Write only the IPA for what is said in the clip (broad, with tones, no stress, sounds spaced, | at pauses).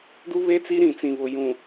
d u˦ β e˦ t͡s i˦ ɾ ĩ˨ t͡s ĩ˨ β ʊ˨ j ũ˨